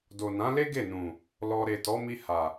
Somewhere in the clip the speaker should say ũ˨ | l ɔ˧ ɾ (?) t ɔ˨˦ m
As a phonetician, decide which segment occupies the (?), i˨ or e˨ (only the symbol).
e˨